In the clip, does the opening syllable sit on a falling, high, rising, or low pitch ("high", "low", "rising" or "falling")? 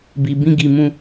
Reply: low